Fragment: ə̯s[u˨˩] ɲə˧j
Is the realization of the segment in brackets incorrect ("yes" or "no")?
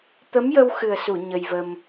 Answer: yes